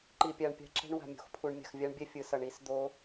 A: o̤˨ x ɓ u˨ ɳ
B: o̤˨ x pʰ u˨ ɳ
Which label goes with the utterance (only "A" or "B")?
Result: B